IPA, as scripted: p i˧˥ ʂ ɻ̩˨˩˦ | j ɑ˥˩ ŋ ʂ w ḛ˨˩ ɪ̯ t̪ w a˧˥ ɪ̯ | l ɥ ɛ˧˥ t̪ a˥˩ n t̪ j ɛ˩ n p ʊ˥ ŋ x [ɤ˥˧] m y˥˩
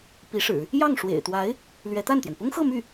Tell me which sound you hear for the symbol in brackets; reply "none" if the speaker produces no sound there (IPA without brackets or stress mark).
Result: ɤ˥˧